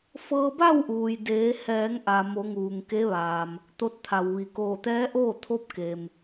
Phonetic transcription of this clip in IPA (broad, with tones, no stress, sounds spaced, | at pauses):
f ɤː˧ b a˥˨ w ʔ uː˩ j d eː˩˧ h ɛː˩˧ ŋ ʔ a˩ m o˩˧ ŋ uː˩ ŋ k e˧˥ ʋ aː˩ m | t̪ o˧ t̚ t̪ʰ a˩ w ʋ i˩ k oː˧˩ t̪ ɛː˧˥ ʔ oː˥˨ t̪ʰ o˧˥ p̚ k eː˩ m